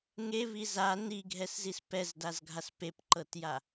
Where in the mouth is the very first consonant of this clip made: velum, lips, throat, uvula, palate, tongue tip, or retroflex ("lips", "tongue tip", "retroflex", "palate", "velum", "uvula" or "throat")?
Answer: velum